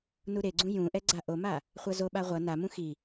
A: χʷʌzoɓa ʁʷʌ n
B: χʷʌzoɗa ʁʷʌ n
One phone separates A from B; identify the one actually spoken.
A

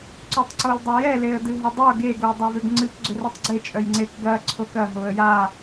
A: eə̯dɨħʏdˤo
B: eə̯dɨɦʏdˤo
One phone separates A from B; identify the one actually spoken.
B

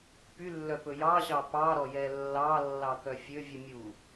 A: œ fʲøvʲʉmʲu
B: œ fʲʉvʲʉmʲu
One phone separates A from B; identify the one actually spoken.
A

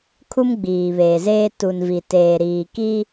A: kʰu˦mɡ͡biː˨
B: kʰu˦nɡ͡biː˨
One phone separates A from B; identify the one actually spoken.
A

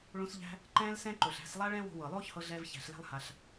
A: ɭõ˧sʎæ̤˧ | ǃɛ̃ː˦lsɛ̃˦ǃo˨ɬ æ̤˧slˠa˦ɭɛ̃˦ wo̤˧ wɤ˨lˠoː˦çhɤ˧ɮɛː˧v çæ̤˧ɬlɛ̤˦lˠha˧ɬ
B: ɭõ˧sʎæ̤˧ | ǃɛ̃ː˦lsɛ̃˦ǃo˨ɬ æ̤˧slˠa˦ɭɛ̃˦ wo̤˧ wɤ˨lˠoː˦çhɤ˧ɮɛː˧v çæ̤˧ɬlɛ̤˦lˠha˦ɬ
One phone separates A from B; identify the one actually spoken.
A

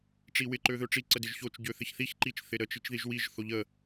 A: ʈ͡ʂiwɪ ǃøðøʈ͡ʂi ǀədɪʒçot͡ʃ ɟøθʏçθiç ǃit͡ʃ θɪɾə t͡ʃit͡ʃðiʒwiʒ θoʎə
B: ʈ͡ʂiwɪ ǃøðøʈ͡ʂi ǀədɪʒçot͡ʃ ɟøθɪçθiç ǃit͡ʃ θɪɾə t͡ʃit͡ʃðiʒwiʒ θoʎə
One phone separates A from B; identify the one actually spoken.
B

